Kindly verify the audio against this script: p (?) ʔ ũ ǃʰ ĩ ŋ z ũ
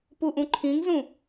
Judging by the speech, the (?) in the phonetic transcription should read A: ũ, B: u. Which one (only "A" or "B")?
B